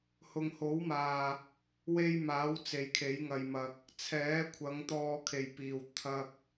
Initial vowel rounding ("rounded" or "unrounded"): rounded